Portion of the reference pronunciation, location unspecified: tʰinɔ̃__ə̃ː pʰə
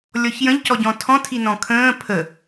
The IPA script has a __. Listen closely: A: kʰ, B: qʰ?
A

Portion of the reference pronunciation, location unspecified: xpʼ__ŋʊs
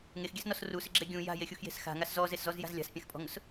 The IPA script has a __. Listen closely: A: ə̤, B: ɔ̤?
B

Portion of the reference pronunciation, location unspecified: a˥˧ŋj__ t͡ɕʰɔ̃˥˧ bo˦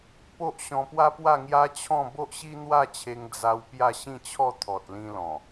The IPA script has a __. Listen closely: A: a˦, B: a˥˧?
A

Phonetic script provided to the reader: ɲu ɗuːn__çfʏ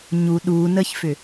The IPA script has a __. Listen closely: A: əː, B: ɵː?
A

